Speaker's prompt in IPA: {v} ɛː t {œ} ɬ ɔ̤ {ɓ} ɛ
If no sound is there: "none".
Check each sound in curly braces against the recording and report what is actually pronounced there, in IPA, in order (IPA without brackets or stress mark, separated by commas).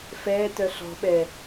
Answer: f, œ, ɓ